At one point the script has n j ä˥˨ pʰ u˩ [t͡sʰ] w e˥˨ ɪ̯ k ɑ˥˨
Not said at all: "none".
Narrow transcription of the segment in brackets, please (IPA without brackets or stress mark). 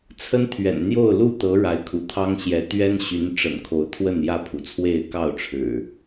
t͡sʰ